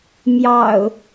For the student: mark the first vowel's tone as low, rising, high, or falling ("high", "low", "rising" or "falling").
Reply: low